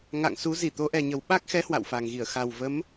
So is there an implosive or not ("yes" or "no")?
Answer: yes